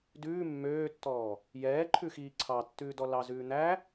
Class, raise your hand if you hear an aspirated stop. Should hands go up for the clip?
yes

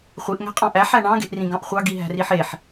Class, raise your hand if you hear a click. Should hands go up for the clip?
no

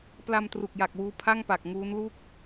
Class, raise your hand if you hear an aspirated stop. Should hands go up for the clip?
yes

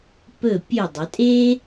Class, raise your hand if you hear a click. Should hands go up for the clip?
no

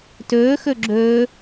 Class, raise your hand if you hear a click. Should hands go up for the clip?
yes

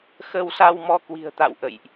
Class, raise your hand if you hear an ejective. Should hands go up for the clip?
no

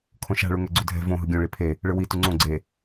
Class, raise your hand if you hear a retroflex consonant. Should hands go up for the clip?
yes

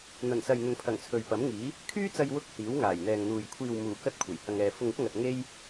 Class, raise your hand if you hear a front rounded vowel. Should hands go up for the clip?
yes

